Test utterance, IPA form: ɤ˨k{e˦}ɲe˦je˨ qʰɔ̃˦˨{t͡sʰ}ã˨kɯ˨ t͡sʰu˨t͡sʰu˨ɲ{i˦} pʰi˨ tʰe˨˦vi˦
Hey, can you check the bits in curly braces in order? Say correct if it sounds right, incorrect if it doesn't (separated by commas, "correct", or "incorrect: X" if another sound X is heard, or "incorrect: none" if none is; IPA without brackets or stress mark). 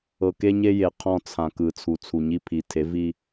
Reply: correct, correct, correct